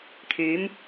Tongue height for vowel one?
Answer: high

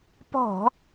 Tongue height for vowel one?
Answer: mid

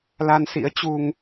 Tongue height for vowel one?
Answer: low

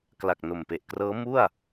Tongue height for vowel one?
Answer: low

